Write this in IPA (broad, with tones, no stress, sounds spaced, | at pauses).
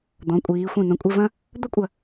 d̪ ɔ̃˩˧ kʷʼ iː˩˧ xʷ ĩ˧˩ n̪ ɐ̃˧˩ kʷʼ ɪ˥˧ v ɐ̃˥ | d̪ ɐ˥ kʷʼ ɐ˧˩